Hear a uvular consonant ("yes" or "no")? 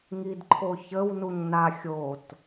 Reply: no